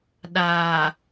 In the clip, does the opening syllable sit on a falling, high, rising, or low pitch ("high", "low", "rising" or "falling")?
low